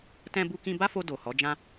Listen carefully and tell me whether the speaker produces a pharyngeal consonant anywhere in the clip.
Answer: no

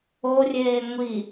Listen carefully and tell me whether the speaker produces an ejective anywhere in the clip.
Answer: no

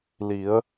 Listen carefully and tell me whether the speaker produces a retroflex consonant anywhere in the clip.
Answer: no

